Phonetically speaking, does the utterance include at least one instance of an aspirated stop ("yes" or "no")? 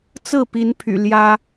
yes